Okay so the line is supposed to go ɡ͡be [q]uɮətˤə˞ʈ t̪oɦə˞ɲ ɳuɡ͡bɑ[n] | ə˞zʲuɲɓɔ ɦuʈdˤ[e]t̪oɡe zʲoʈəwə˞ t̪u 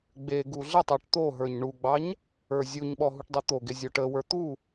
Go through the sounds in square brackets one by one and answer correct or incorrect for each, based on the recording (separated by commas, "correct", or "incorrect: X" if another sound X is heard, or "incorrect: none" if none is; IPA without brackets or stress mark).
incorrect: ɡ, incorrect: ɲ, correct